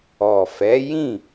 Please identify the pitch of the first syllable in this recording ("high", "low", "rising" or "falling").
low